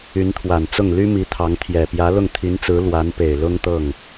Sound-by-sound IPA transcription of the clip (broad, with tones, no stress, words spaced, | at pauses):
y˧˥nt̪ʰwa˨˩nt͡sʊ˥˩ŋ ly˥mi˧˥ t̪ʰɑ˧˥ŋt̪ʰjɛ˨˩ pjä˧˥lʊ˥˩ŋt̪ʰi˧˥nt͡sɹ̩˧˥ lwa˧˥n pe˨˩ɪ̯lʊ˥ŋt̪ɤ˥˩ŋ